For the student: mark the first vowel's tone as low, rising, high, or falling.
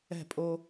falling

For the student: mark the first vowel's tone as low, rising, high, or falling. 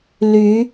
rising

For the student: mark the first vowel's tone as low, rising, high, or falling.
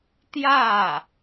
falling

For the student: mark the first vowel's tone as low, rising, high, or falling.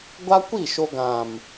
high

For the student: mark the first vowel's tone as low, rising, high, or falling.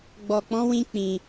low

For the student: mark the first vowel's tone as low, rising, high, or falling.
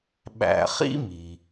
low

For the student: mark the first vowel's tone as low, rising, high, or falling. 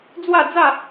falling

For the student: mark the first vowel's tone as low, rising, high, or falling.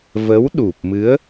rising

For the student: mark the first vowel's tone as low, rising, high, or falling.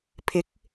rising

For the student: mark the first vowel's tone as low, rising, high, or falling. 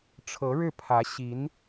rising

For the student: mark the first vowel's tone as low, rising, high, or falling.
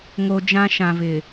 low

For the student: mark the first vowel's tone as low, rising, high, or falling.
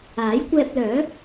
rising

